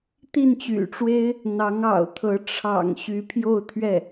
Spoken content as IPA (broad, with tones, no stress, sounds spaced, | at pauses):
t̪ i˥˩ n t͡ɕ y̰˨˩ ʈ͡ʂ w e˥ ɪ̯ | n̪ ɑ˧˥ ŋ ɑ̰˨˩ ʊ̯ t̪ʰ ɤ˧˥ ʈ͡ʂʰ ɑ̰˨˩ ŋ ɕ y˧˥ pʰ j o˥˧ ʊ̯ t̪ʰ ɥ ɛ˥˩